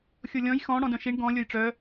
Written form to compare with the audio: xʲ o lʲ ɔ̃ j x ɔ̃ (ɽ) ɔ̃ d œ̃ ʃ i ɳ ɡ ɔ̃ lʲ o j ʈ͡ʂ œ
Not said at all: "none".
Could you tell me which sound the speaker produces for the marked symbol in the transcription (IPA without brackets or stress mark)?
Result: ɽ